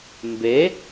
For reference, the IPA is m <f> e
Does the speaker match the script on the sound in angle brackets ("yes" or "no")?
no